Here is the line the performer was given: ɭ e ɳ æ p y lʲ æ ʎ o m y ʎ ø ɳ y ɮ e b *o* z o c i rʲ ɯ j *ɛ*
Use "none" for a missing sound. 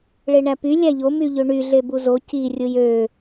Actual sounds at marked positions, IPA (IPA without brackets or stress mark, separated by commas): u, ø